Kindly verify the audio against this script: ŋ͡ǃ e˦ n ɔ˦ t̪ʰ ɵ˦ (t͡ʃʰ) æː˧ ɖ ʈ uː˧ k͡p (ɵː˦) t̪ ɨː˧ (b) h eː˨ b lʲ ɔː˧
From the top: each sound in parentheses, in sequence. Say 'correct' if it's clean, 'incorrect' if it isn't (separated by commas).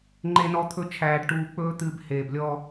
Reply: correct, correct, correct